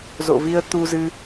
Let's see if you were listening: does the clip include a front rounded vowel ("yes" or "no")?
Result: no